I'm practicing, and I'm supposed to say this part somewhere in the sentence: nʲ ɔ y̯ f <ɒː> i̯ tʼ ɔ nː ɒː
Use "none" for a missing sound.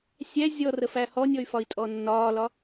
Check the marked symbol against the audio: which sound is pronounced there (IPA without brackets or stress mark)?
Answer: ɒ